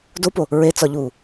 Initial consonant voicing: voiced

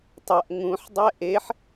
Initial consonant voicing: voiceless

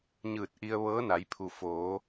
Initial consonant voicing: voiced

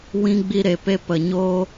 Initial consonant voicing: voiced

